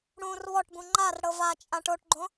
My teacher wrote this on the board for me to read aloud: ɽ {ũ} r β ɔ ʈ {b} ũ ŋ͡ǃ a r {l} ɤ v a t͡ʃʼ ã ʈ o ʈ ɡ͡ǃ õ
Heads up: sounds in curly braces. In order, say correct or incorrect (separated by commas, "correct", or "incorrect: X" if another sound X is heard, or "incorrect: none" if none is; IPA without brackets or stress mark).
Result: correct, correct, incorrect: ɽ